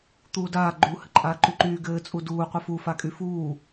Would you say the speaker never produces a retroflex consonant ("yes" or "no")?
yes